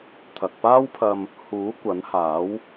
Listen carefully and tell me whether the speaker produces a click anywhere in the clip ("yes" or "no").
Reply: no